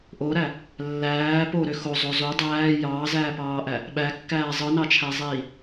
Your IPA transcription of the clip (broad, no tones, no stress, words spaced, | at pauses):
ʔoɾæ | lːæː poɾø xozˤo zo dˤæː jɑːzæːpɑːʔæ | ɓækːæː zˤɯnɑt͡ʃʰæzˤiː